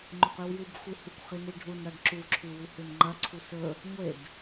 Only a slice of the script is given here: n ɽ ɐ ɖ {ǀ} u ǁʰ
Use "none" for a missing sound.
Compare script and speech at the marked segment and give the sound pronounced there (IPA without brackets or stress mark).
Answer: ǁ